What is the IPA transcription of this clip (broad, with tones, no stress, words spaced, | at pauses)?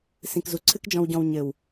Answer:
sĩ˨kzu˨ ǀʰɨ˦kd͡ʒɔ̃˧wɟɔ̃˧w ɲɘ˨w